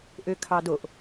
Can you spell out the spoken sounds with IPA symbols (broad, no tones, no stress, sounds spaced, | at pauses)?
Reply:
ʔ ø kʰ ɑ d o ʔ